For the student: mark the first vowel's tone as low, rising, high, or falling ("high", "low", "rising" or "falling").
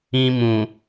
high